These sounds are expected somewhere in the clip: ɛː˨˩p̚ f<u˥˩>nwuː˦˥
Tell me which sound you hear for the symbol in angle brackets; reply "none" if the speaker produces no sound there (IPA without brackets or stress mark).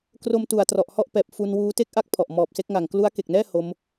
u˧